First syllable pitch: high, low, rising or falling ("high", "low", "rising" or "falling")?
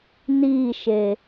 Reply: falling